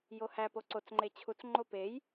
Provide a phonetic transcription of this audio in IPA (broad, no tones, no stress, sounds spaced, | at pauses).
j o h æ p o ǀ o t͡s ŋ͡ǃ e t͡ɕʰ u t͡s ŋ͡ǃ o p e j